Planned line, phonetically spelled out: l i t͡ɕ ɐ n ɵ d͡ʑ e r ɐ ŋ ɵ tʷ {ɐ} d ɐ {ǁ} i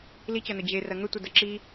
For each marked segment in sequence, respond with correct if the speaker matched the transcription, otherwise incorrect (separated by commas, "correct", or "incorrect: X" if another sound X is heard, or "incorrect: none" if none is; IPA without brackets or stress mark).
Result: correct, correct